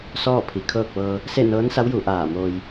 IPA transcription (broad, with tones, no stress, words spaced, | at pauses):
sɔː˥˨pʰi˩kʰɤː˥˨k̚ʋɤː˧ | se˥˨nɤː˧˥nsa˧˥w ju˩˧ ʔaː˧˩moː˧j